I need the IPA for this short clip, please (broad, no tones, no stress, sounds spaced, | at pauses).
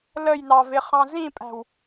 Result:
l ə j n ɑ v ɪ χ ɑ̃ z ĩ pʼ æ̤ w